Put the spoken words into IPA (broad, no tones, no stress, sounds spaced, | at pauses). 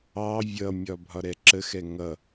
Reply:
ɑ vʲ ʌ mʲ ɒ bʱ ɒ ɾ ɛ ǁ ə x ɛ ŋ ʌ